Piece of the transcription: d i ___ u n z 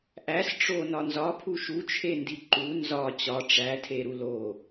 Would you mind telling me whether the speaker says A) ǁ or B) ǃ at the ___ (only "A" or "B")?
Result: B